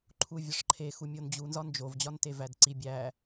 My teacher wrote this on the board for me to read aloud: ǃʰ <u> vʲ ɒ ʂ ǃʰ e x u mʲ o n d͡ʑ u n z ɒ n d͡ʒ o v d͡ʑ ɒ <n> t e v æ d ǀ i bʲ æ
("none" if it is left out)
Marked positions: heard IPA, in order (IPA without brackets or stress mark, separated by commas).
u, n